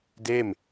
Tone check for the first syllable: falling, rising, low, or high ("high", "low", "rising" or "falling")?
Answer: falling